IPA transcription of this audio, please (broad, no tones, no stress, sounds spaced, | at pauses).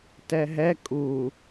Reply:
t ɛ ɦ ɛ kʼ u